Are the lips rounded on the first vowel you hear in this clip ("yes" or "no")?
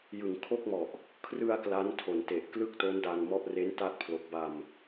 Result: no